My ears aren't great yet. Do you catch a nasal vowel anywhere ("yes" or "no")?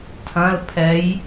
yes